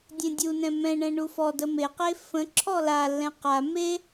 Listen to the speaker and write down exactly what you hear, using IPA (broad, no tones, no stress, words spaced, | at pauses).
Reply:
dʲɛ̃dʲunɛ̃ mɛ̃ɳɛ̃ ɳufɔdə meqe fə̃ ǁʰɔlalːɛ̃ qa me